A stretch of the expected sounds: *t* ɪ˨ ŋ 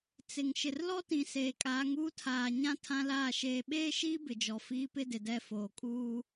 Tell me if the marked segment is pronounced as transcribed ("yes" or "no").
no